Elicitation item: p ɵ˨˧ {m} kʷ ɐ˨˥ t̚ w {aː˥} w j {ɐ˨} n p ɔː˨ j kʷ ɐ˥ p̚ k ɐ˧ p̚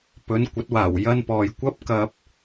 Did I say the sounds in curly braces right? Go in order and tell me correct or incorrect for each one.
incorrect, incorrect, incorrect

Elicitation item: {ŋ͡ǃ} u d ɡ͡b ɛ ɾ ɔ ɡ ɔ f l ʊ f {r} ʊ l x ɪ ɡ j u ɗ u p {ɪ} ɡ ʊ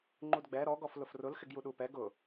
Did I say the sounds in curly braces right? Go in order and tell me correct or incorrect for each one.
correct, correct, incorrect

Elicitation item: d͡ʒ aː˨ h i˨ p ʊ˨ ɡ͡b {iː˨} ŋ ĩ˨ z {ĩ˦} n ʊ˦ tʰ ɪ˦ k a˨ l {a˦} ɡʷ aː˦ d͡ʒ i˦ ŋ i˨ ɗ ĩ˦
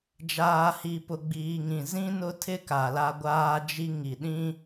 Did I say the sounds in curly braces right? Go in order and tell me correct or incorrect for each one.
correct, correct, correct

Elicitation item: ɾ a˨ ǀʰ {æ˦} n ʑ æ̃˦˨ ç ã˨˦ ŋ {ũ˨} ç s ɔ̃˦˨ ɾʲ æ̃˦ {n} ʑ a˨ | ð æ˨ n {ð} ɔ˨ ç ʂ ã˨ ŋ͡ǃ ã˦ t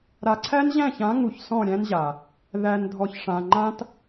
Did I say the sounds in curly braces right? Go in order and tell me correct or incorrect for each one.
correct, incorrect, correct, incorrect

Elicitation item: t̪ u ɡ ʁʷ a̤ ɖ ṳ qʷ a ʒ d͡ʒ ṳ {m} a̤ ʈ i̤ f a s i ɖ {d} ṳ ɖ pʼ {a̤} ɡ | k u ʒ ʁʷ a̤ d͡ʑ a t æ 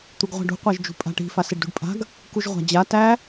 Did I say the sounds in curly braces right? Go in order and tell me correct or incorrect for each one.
incorrect, correct, correct

